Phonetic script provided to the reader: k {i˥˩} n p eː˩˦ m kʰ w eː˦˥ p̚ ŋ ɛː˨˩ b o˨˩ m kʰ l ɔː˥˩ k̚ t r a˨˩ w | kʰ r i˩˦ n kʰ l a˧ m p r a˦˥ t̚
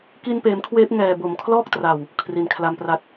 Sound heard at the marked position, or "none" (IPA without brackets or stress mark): i˧